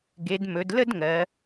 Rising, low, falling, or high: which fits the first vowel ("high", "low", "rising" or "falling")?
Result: rising